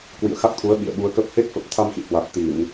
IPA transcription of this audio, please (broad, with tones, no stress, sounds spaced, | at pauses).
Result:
k w ḭ˧˨ ə̯ x a˦˥ k̚ t̪ʰ u˨˦ ə̯ ɓ ḭ˧˨ ə̯ ɓ u˨˦ ə̯ k ə˦˥ p̚ h e˦˥ k̚ f ə˨˩ p̚ t̪ʰ a˧ m x ḭ˧˨ h w a˨˩ t̚ t̪ i˧˩˨ n